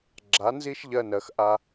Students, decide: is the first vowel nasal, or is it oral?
oral